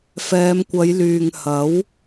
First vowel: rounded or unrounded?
unrounded